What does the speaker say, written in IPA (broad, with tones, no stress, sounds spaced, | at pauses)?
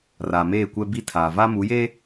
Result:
r aː˨ m eː˦˨ kʷ ɛ˦ b i˦ tʰ aː˨ v a˦ m u˨˦ j e˦